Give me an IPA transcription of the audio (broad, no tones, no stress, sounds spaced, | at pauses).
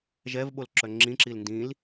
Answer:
ʒ ɛ v ɓ o l ǁ œ ŋ͡ǁ ĩ ǁ i l n d ĩ l